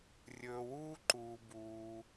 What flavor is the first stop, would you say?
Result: click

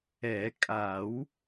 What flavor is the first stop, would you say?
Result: ejective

